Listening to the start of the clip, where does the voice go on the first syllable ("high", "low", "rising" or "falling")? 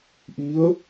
rising